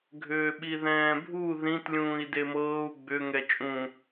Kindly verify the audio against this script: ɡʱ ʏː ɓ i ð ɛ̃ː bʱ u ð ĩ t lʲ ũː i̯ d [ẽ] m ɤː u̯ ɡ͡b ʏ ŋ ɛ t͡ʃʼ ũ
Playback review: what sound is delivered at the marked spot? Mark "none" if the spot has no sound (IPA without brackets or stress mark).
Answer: e